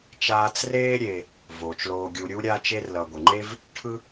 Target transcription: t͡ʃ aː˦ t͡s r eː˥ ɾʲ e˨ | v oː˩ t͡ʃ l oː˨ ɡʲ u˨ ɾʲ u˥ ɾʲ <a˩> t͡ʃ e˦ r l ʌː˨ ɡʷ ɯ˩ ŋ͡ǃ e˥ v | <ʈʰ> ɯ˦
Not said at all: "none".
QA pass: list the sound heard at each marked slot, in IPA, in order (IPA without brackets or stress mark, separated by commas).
a˦, ʈʰ